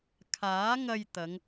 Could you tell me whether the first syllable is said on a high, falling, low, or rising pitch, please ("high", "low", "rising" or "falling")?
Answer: rising